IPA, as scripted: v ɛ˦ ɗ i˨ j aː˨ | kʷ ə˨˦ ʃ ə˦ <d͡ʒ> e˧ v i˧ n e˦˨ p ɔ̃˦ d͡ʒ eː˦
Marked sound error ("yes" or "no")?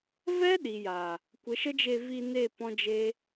no